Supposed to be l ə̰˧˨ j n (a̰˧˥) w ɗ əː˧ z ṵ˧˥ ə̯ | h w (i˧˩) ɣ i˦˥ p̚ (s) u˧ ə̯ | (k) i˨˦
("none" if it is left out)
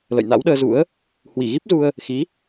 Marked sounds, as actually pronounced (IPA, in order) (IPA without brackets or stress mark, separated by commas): a̰˧˥, i˧˩, z, x